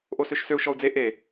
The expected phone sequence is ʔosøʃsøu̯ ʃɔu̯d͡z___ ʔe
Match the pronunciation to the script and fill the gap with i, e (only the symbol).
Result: e